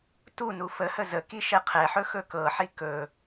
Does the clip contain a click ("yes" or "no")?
no